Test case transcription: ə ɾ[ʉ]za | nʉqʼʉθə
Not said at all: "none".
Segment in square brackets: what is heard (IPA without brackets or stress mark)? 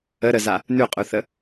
ə